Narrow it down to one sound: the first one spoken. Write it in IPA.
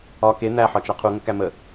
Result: ɒ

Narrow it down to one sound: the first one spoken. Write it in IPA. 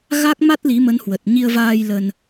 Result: ɣ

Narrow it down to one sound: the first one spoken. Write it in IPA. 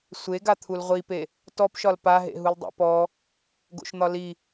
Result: sʷ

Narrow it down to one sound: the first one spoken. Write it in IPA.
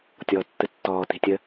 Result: tʲ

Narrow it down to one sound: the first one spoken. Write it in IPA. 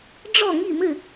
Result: ɖ͡ʐ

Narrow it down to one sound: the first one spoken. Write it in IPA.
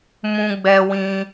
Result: m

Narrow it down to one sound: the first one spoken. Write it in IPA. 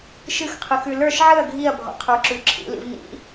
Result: ʃ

